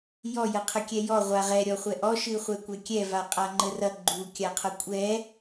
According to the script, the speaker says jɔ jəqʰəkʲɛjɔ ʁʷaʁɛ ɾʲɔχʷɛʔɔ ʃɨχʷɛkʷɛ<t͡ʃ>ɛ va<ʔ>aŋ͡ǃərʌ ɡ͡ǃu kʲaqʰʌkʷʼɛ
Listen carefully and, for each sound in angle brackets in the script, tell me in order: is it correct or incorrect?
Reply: incorrect: kʲ, incorrect: qʼ

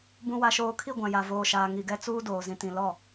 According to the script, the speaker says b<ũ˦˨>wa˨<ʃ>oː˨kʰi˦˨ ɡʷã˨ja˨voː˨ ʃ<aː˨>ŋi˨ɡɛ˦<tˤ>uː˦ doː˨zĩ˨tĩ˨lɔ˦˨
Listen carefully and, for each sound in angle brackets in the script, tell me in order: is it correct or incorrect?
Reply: incorrect: ũ˨, correct, correct, incorrect: t͡s

